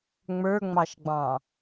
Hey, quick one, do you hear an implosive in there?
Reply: no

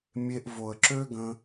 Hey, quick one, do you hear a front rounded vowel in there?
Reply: yes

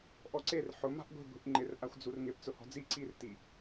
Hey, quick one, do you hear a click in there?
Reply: yes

